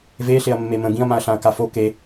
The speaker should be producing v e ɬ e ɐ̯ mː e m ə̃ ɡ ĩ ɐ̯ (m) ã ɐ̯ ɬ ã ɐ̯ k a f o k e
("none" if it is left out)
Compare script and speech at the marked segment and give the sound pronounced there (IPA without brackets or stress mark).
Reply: m